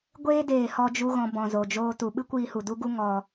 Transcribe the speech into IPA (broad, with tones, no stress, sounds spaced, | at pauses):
ɡʷ eː˧ d eː˨ h ɔ˧ d͡ʒ u˧ ɣ ɔ̃˨ b ɔ̃˨ z o˨ d͡ʒ oː˦ t u˨ ɓ ɨ˦ kʷ iː˧ h u˨ d u˦ ɡ u˦ ŋ ɔ˧